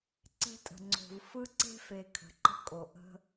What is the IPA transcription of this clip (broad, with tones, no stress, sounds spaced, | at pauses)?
ǀ e̤˦ tʼ ə̤˨ ŋ͡ǀ o̤˨ v f ɯ˦ ǀ e̤˦ f e˨ kʰ ə̤˨ ǃ ə̤˦ kʼ o˨ ʔ ə̤˦